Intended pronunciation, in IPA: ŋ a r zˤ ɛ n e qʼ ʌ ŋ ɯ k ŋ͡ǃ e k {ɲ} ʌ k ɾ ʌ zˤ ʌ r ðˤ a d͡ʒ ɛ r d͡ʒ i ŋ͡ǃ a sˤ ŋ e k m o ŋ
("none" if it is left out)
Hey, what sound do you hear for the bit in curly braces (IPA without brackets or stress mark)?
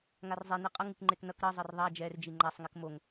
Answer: n